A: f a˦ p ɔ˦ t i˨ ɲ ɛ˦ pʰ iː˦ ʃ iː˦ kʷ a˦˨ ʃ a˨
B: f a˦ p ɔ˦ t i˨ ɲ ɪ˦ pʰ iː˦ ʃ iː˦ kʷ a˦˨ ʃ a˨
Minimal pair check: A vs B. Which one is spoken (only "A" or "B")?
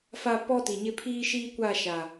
B